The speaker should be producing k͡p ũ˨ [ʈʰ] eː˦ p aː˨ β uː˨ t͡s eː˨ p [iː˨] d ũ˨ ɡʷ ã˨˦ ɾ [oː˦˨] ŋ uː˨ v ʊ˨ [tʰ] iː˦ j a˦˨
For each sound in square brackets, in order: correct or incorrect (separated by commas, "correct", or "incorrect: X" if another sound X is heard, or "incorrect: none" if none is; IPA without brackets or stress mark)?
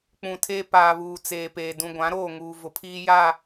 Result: incorrect: tʰ, incorrect: eː˨, correct, incorrect: pʰ